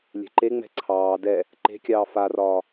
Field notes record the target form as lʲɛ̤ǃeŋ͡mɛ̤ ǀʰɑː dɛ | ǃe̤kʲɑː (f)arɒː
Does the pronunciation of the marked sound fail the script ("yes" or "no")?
no